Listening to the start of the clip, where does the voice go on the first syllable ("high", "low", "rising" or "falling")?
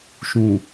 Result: low